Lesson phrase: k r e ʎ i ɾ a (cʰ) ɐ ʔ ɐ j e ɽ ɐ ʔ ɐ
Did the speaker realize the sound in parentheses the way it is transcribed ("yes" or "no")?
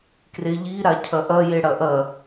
yes